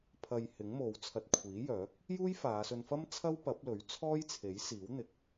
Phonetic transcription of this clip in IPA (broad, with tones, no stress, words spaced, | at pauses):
pʰɐ˨j hɪ˨˥ŋmo˨˧wt͡sʰɐ˧t̚ kʷʰiː˨˥jœː˨˥k̚ | juː˥jfaː˨˧sɵ˧nfɐ˥m t͡sʰɐ˥wpɐ˨˥p̚lɵ˨˥ɥt͡sʰɔː˥j t͡sʰe˨˥jsiː˨˥wn̪ɪ˨k̚